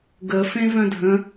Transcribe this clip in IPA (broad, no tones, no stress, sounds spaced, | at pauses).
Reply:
ɡ ə f ẽ v œ̃ dʱ ə̃